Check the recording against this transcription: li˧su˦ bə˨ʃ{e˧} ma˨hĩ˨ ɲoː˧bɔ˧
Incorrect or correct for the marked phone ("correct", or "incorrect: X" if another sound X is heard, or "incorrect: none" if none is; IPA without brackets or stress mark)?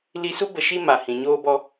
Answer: incorrect: i˧